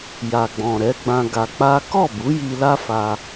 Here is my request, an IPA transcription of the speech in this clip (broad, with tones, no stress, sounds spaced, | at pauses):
j a˨ ɡ͡b ɔ̃˨ ɾ ɛ˨˦ ɡ͡b ã˧ ɡ a˧ k͡p a˦ k ɔ˦˨ b u˨˦ j i˧ l a˦ f a˧